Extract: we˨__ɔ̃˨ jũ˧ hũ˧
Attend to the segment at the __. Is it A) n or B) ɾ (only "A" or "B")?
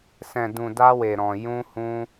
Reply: B